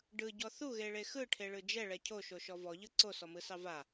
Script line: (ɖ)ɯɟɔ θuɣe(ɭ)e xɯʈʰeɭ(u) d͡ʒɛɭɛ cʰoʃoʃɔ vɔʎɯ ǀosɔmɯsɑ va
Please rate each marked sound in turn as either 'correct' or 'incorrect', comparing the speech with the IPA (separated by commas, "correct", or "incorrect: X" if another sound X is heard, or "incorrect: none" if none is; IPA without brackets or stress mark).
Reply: correct, correct, incorrect: ɯ